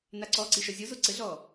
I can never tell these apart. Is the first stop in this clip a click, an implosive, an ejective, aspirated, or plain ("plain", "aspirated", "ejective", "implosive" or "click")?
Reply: click